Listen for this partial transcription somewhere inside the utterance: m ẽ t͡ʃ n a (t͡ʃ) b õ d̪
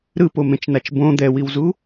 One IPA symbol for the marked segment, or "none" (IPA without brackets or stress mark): t͡ʃ